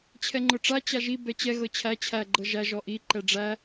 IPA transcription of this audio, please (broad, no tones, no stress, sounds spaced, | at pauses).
t͡ɕʰ ɛ ŋ͡ǃ ʊ ʈ͡ʂ a t͡ɕ a ʒ i b ɛ t͡ɕ ɛ ɣ ɤ t͡ɕʰ æ t͡ɕʰ æ ɡ͡ǃ ɤ ʒ æ ʒ ɔ ʔ i ǃ ɛ ɖ͡ʐ æ